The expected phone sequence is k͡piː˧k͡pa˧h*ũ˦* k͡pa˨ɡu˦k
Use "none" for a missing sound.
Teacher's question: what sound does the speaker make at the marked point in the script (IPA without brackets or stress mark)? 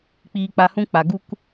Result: ũ˦